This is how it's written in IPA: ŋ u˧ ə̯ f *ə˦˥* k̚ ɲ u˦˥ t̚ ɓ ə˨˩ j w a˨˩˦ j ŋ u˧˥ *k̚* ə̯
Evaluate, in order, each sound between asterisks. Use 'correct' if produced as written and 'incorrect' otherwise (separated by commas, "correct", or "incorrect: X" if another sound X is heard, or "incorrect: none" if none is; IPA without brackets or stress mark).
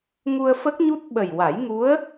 correct, incorrect: none